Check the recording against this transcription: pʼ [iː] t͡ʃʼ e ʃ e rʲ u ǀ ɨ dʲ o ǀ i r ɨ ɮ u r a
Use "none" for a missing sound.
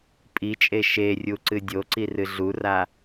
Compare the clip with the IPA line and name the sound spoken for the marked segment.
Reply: i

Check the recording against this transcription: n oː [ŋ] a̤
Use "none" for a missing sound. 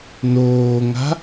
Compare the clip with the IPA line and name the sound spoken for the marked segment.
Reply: ŋ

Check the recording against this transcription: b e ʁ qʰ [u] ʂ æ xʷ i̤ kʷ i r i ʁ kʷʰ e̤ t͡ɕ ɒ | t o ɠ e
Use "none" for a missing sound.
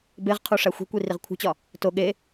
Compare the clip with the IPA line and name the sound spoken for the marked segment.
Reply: u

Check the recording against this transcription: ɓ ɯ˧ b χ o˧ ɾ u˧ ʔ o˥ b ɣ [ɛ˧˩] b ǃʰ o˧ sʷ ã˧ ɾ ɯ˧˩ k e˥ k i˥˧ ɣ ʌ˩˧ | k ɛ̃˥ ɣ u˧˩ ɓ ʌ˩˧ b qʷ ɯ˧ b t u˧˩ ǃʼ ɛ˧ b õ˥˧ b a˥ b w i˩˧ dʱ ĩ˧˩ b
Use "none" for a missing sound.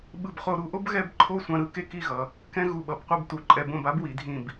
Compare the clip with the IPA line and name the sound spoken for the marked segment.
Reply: ɛ˧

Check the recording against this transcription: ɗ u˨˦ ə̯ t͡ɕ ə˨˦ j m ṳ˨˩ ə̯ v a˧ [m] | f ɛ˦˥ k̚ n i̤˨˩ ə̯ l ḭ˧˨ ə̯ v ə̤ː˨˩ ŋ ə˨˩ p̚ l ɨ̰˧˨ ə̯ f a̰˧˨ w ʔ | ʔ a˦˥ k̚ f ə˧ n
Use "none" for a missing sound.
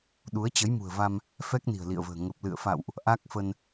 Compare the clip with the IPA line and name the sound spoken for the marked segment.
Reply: m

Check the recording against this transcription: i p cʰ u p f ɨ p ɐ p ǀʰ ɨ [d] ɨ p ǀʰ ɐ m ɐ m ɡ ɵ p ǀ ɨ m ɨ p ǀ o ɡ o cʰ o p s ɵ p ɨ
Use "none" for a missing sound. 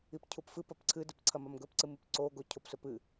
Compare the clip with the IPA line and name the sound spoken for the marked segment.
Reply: d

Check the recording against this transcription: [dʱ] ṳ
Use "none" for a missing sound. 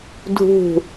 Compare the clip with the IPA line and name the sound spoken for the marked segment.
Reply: dʱ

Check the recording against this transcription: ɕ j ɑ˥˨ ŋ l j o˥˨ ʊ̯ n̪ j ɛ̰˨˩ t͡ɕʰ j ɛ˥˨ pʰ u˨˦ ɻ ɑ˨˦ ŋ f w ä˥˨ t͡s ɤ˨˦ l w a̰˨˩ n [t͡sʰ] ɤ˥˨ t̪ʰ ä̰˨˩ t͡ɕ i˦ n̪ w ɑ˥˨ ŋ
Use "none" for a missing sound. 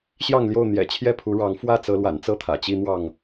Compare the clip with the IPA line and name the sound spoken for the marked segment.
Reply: t͡s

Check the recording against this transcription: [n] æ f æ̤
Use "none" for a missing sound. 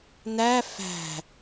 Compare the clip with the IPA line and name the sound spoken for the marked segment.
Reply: n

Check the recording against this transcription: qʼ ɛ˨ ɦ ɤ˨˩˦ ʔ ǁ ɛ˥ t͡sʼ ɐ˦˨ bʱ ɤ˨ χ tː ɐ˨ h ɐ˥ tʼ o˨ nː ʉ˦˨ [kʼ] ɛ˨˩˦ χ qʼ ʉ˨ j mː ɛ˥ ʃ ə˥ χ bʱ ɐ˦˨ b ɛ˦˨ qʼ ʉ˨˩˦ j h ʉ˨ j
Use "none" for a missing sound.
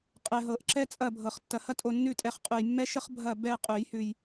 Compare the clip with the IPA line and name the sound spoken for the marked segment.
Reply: tʼ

